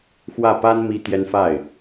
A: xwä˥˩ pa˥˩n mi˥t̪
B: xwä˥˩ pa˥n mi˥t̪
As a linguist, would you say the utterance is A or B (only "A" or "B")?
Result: B